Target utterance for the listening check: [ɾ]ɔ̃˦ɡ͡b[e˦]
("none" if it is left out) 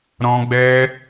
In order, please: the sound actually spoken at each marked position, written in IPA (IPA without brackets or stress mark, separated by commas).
ɾ, ɛ˦